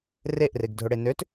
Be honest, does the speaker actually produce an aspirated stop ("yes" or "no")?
no